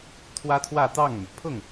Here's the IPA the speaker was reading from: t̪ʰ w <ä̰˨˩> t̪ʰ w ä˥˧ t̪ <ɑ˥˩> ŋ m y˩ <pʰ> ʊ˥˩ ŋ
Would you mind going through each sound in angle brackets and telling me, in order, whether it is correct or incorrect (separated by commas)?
incorrect, correct, correct